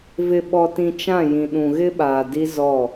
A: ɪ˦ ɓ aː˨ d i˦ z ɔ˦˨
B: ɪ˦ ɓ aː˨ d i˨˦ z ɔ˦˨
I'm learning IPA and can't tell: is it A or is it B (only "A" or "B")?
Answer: A